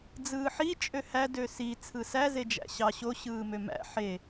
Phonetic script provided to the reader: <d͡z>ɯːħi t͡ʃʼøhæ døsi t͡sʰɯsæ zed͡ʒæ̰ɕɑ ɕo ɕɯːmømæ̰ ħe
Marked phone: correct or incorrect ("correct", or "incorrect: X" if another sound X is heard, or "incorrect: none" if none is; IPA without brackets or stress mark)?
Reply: correct